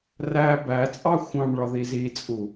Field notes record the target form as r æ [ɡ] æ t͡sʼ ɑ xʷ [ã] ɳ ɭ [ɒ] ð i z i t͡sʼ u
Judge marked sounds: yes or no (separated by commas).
no, no, yes